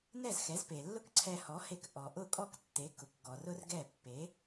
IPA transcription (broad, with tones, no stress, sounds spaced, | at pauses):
n ɛ˥˩ z x ɛ˩˥ z p e˩ lː ʊ˥ k ǀʰ ɛ˧ h ɔ˩˥ h e˧ k ʔ ɔ˩ ʔ ʊ˥˩ kʼ ɔ˥˩ k tː e˩˥ k ʊ˩ k ɡ ɔ˩ r ʊ˥ r ɡ ɛ˥˩ pː e˩˥